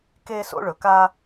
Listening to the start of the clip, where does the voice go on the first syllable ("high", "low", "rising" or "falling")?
high